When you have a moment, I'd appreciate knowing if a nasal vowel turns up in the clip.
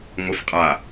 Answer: no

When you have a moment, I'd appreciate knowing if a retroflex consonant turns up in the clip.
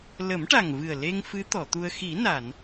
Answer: yes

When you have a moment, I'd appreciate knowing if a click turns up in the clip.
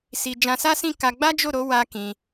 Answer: no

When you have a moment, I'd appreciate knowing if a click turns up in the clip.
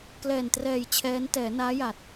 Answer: no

